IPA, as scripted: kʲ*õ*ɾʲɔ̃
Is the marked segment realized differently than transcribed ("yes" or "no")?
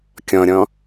yes